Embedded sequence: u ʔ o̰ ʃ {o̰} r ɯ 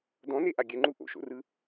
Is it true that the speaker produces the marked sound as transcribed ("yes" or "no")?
yes